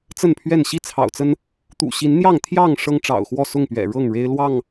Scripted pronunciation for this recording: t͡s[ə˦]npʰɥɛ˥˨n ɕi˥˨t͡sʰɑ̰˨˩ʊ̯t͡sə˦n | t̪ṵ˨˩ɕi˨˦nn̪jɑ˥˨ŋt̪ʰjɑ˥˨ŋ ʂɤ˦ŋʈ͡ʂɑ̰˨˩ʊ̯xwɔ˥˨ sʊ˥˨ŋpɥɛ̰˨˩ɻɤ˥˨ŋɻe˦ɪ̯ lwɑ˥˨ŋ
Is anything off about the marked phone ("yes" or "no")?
yes